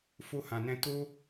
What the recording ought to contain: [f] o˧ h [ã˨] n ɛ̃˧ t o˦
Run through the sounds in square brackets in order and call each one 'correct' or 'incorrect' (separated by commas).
correct, correct